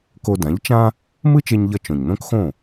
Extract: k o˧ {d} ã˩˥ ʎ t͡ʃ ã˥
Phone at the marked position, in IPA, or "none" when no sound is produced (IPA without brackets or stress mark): d